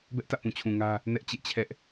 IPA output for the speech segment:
bɛ˦ʔtä̰˦˨pũ˨t͡ɕʰũ˨ ŋä˦ | nɛ˦ʔt͡ɕḛ˦˨ t͡ɕʰɛ˦ʔ

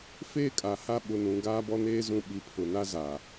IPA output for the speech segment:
feː˦kʼa˨ha˦ ɓʊ˨nũ˨ ɡaː˦bɔ˦neː˦ zũ˦ ɓi˨pʰʊ˨ na˦zaː˨

